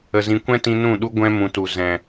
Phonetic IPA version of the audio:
ə˧zĩ˧ kʷɛ̃˦tĩ˧ nũ˦˨ɗu˦ ɡʷɛ̃˧ mũ˨tu˨ zɛ̃˨

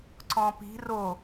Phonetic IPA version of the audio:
ǀɔ̃pi̤ ro

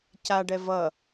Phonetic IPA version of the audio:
caɖɛ vʌ

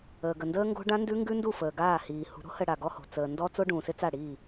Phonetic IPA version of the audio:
əː˨ɡə˨ndəː˦ŋɡo̤˦ ɖã˦ndʉ˦ ŋɡʉ˦ndu˦˨ fəː˨ɡaː˦˨hiː˨ hṳ˨ɾo̤˦hə˨ ɽa˨ɡɔ˦ho̤˨ t͡səː˨ ndɔ˦t͡so˦ ɖũː˨sɪ˦ t͡sa˦˨ɽiː˦˨

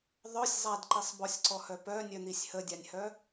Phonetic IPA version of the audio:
ðˤœsʲ zˤadǃisˤ bɔsʲǀɔhœ pœnʲœn̪isʲ hədʲanʲhœ

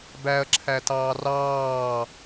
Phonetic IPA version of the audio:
bæɐ̯ǁʰætɑː rɑː

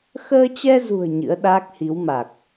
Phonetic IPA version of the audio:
xəː˧t͡ɕɛ˧zṳ˨˩ə̯ ɲɨ̰˧˥ə̯ɗaː˦˥k̚hi˨˦wma˨˩k̚

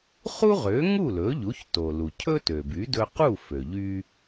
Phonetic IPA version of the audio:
χu˥ʁø˩˥ ŋu˥˩lɵ˩˥ʎu˩˥çto˩ lu˩cʰɵ˥tø˩by˩˥ dɵ˧qu˥˩fø˩ʎy˧

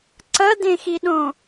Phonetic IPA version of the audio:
ǀɐdẽxiɗõ

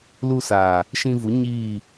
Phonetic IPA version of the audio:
lu˧saː˨ | ʃĩ˧vu˨˦ ɲiː˦˨

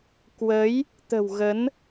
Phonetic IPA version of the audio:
kwə˨˦j | t̪ə̤˨˩w ɣə˨˦n

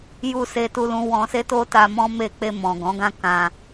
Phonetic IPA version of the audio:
ju˧ se˦tu˦lũ˦ wɔ̃˧se˦to˦ta˧ mɔ̃˦me˦˨ k͡pe˧mɔ̃˨ ɡɔ̃˨˦ɡã˦kã˧

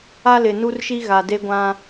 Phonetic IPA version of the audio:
a˦lɪ˨nu˦rʃi˦ ɣa˨de˦ɡʷã˦

